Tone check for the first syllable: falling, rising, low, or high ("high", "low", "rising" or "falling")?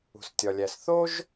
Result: low